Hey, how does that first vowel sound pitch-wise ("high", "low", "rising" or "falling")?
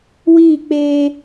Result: falling